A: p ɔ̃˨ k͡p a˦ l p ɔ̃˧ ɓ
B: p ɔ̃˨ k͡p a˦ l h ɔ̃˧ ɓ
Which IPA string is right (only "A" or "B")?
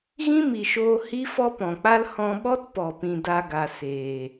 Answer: B